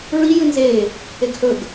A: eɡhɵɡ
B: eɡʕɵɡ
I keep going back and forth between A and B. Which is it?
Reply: A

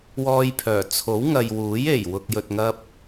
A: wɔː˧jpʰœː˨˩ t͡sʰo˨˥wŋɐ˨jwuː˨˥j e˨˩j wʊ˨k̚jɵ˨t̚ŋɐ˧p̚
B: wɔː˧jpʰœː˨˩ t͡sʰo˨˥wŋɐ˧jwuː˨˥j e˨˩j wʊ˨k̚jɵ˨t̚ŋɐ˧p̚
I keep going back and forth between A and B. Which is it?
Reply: A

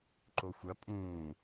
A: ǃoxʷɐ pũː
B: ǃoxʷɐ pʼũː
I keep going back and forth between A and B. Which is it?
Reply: B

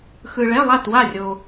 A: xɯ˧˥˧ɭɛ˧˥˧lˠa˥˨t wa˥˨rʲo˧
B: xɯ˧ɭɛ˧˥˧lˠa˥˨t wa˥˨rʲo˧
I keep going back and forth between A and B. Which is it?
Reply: B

